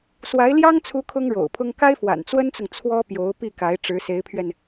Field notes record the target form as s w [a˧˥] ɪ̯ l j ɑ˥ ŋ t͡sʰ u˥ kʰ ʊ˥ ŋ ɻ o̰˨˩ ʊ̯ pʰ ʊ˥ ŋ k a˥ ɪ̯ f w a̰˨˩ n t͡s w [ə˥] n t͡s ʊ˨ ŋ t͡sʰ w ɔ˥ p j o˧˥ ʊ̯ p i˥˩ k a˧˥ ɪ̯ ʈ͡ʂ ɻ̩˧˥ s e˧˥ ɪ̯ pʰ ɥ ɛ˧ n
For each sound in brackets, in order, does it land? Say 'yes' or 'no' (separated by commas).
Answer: yes, yes